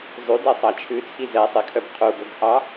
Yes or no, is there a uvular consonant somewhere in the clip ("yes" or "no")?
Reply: yes